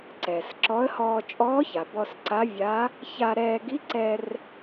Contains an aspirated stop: no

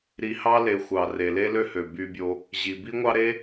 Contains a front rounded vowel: yes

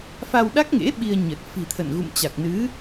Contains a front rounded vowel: no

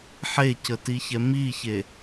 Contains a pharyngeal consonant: yes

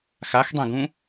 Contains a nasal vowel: yes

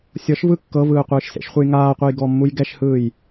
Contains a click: no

